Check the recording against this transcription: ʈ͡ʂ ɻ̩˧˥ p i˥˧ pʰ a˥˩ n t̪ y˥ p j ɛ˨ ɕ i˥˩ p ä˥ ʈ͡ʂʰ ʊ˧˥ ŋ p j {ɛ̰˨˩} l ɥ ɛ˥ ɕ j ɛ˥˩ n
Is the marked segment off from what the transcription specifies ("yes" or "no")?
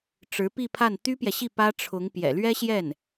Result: no